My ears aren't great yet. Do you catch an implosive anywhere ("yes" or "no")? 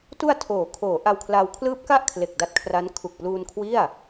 no